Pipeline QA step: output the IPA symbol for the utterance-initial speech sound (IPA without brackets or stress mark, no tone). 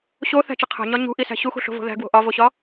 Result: ɕ